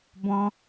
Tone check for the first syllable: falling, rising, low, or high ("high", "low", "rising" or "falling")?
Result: high